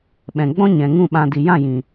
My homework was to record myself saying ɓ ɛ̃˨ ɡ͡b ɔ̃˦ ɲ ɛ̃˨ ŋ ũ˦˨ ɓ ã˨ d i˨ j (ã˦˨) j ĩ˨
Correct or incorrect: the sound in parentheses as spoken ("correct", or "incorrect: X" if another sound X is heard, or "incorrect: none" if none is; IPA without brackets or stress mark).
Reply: correct